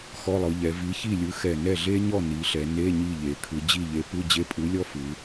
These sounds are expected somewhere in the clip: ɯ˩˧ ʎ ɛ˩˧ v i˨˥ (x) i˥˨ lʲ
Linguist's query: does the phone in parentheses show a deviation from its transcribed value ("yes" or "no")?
yes